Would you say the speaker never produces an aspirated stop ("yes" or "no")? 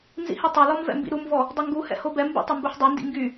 yes